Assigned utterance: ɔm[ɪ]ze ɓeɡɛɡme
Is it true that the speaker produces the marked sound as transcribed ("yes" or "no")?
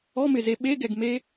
yes